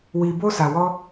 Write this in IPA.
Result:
wi˧bo˦sa˧wɔ˦

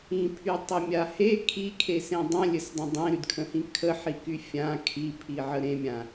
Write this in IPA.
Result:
ĩpʰytˤəmʲa he kʰikʰesẽ dˤə̃lʲɘsdˤə̃ dˤẽɾydkʰə̃hĩ kʰəħiky fʲã kʰipʰiʕə ɾẽmʲã

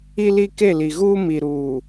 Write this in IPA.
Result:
i˦li˦ ke˦˨li˨ɣuː˦ mi˨ɾuː˨

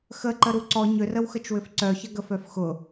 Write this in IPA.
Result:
xəǃəɾu ǀɔ ɲʏrəwxət͡ʃwʏf ǀœçəɡə fœfxʊ

